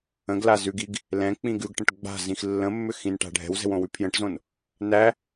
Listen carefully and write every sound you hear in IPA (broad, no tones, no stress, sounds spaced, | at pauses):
ə̃ ɡ l a z ʉ ɡ i ɡ | l ɛ̃ k͡p ĩ ɡ ʉ ɡ ʈ ə̃ ʈ ɡ͡b a̤ z ĩ x lː ə̃ mː ʏ x ĩ n ʈ a̤ ɖʱ ɛ̤ w z ɛ̤ w õ w ʉ pʰ j ə̃ ʈ z õ n | n æ